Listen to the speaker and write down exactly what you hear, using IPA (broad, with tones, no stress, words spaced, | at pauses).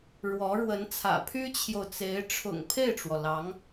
ɻwɔ˧˥ɻwə˧˥nt͡sʰä̰˨˩ pʰy˥t͡ɕʰjo˨ʊ̯t͡se˧˥ɪ̯ ʈ͡ʂʰʊ̰˨˩ŋ pʰe˥˩ɪ̯ʈ͡ʂwɔ˩lɑ˧˥ŋ